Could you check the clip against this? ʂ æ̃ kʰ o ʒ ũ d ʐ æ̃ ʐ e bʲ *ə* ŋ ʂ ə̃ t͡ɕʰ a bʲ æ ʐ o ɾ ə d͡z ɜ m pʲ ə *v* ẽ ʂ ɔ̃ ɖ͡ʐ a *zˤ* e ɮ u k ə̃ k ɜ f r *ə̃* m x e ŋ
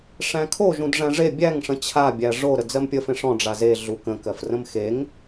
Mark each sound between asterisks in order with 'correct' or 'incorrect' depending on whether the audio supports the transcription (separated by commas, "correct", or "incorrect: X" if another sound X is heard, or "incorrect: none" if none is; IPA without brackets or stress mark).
incorrect: æ, incorrect: f, incorrect: z, correct